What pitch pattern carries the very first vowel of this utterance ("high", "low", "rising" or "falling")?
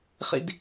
low